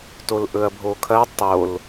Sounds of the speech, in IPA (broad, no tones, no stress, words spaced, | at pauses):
tolʔɵɐ̯bʱokʰɐ tˤol